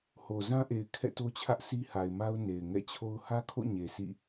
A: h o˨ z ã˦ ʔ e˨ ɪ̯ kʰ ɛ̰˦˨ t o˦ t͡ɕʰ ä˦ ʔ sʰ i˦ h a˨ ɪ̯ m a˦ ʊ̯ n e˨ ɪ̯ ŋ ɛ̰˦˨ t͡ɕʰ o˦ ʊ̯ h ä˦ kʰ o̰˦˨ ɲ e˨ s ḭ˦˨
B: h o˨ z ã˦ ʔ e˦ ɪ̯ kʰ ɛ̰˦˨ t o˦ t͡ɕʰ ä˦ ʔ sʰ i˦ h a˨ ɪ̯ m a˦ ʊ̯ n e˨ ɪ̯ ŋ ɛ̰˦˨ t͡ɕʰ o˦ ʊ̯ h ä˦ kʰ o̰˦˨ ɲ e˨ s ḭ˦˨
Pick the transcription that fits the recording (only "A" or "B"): A